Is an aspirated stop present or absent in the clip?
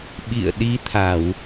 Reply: present